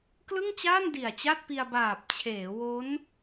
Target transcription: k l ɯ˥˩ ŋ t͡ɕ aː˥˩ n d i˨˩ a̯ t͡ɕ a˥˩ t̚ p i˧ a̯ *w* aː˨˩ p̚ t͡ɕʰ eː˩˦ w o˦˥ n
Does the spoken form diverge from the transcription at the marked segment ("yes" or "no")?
yes